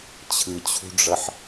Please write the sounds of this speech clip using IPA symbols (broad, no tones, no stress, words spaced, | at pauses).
t͡ɕʰɯt͡ɕʰṳɖ͡ʐʌħ